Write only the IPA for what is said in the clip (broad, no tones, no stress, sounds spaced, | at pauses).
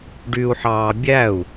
ɖ y u̯ ħ ɑː bʲ æ u̯